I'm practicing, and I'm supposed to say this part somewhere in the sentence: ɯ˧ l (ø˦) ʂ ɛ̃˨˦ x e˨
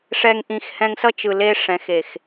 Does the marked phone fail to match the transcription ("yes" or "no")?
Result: yes